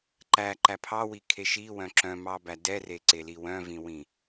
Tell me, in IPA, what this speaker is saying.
ǃ æ ǃ æ pʰ ɑ w i kʰ e ʃ i w œ̃ ǁ œ̃ m ɑ b æ d ɛ r e ǀ e l i w œ̃ v ĩ w ĩ

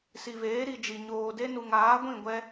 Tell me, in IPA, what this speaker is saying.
s i˨ v eː˨˦ ɾ i˨ d͡ʒ i˨ ɲ oː˨ d e˦ n u˨ ŋ aː˨˦ ɡʷ ĩ˦˨ ɡʷ ɛ˦

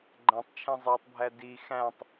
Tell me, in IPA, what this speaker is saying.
ɡ͡ǃ æ̃ tˤ t͡ʃʰ ẽ zˤ e tˤ bʱ æ d i x æ̃ tˤ

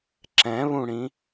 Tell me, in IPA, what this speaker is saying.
ǁ ɛ̃ β ũ ɽ ĩ

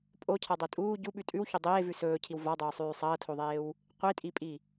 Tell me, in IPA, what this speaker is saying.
pʼ o cʰ a dˤ o tʼ uː ɟ u ɓ ʉ tʼ ʉ w ç o dˤ eː v ʉ s ɵː cʰ i w v a dˤ ɵː sˤ ʉː sˤ ɐː tʰ o ðˤ eː w | qʷ i tʼ i pʼ i

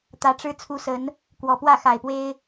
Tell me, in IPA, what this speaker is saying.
t̪ ä˨˦ ʈ͡ʂ ɻ̩˦ t͡sʰ u˨˦ s ə˨˦ n | k w ɔ˨˩ p w ä˥˨ x a˨˩ ɪ̯ p w e˦ ɪ̯

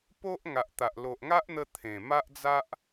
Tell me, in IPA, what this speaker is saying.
p o˦ ʔ ŋ a˨ ʔ t̪ a˨ ʔ l o˨ ʔ ŋ a˦ ʔ n̪ ə˧ t̪ʰ ẽ˨˩ m a˦ ʔ d͡z a˦ ʔ

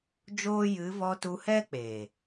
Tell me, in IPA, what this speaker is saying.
d͡ʒ oː˦ j ɨ˨˦ v ɔ˧ t u˧ h ɛ˦ k͡p eː˨

